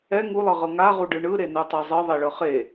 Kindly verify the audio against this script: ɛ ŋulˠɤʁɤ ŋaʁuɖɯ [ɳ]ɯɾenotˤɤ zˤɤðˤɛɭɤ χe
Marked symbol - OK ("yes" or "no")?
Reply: yes